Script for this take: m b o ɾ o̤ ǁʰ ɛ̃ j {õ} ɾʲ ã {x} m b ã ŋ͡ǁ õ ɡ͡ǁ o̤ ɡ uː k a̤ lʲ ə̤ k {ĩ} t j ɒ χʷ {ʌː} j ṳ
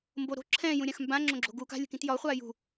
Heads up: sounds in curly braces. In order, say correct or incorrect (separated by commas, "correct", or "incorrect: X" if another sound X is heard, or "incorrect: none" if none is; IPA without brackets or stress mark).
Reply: incorrect: ũ, correct, correct, incorrect: aː